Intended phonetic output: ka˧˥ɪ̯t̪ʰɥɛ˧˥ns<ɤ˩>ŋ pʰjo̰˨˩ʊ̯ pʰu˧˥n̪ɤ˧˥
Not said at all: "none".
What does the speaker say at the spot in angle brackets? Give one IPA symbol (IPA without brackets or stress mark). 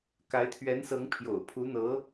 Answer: ɤ˧˥